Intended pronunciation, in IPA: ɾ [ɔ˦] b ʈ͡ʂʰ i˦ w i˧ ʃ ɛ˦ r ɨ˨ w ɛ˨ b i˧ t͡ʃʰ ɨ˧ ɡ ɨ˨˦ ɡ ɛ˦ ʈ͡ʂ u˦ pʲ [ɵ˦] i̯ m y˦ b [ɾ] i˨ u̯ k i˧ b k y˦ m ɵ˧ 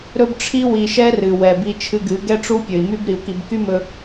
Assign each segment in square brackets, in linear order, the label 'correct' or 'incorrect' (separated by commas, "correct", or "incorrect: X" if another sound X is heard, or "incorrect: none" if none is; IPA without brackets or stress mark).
incorrect: ɵ˦, incorrect: ɵ˨, correct